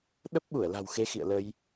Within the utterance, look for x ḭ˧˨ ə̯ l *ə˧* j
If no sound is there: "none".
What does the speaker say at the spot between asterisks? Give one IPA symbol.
ə˧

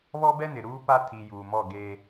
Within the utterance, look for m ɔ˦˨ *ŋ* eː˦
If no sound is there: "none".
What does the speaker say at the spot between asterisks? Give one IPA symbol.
ɡ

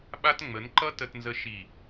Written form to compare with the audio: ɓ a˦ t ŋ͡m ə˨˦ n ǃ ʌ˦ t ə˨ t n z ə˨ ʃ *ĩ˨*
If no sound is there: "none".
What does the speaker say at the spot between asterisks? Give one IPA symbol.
i˨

